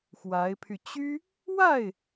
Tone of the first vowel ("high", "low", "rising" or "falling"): rising